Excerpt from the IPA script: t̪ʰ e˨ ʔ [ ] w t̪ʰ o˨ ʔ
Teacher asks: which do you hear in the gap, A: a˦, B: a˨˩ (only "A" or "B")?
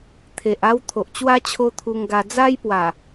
A